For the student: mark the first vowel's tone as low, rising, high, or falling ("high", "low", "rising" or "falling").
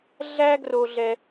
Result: high